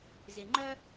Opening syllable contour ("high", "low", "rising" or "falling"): low